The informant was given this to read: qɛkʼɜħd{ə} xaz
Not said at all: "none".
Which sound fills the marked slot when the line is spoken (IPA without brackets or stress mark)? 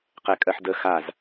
ə